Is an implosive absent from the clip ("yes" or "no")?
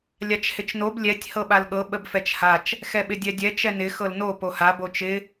no